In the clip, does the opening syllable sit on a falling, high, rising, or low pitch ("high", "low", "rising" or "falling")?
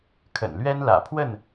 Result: low